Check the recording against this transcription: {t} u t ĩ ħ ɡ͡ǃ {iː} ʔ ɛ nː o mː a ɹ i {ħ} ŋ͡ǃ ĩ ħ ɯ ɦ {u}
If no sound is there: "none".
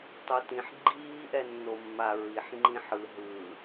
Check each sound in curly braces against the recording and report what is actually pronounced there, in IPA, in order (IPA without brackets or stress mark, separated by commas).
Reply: tˤ, iː, ħ, ɯ